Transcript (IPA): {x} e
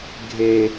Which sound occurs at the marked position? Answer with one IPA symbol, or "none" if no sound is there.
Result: ɡʱ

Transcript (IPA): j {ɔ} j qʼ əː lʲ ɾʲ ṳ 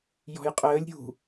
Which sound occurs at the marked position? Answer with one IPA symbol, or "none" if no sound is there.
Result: ɔ̤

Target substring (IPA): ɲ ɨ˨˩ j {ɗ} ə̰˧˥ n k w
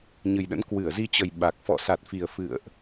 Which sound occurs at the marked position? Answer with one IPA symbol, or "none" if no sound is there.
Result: ɗ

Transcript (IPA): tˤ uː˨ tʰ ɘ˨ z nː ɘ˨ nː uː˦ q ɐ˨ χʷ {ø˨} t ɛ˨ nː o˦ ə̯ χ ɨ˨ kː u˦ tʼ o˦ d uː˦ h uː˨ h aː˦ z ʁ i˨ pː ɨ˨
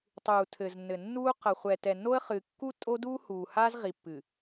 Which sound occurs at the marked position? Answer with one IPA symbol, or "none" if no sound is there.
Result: ɛ˨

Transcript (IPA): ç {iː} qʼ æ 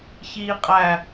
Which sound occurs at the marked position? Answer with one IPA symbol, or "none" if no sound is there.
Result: iː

